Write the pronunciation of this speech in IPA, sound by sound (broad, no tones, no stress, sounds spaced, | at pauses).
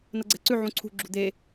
n ɤ ɡ͡ǀ ɛ̤ ǀ ʉ ʕ ũ ǀʰ ṳ ɡ͡ǁ ṳ d̪ e